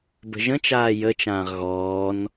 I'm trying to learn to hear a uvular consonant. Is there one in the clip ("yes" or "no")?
yes